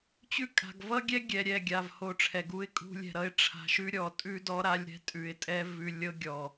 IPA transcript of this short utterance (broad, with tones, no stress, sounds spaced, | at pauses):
t͡ɕ ʉ˦ kʼ a̤˨ ɡ v ʌ˦ ɡʲ ɛ˦ ɡʲ ɛ˨ ɾʲ ɛ˦˨ ɡʲ a˨ v h o˨ ʈ͡ʂʰ ɛ˨ ɡ u˦ ɪ̯ kʼ ṳ˦ lʲ ɛ̤˨ ɾ ʌ˦ ɪ̯ ʈ͡ʂʰ a̤˨ ʃ ʉ˦ ɾʲ ɔ˨ tʼ ʉ˦ d ɔ˦ ɾ a˦ lʲ ɾ ɛ̤˦ tʼ ʉ˨ ɪ̯ tʼ ɛ˦ v ʉ˨ lʲ ɤ˦ ɡʲ ɔ˨